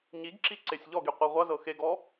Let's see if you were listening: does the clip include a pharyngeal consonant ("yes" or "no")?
no